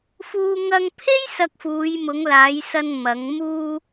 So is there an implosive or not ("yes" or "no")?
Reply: no